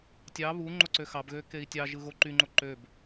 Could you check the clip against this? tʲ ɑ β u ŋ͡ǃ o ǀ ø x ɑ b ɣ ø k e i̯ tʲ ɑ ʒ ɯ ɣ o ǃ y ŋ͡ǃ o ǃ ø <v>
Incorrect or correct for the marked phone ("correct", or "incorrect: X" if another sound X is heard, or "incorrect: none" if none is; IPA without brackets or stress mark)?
incorrect: b